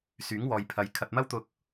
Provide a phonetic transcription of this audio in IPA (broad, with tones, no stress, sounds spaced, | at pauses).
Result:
s yː˨˥ ŋ w ɔː˨ j pʰ ɐ˨˧ j kʰ ɐ˨ t̚ m ɐ˥ w t̪ ʊ˧ k̚